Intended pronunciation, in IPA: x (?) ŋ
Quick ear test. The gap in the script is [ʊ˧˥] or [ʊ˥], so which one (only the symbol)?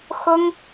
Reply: ʊ˥